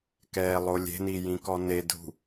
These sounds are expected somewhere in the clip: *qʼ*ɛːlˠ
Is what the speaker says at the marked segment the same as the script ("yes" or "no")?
no